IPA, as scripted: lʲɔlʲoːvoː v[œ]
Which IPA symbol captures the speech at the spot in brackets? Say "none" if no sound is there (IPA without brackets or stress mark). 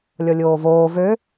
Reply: ø